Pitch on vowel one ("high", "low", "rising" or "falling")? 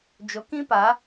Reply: rising